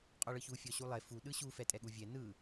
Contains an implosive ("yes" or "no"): yes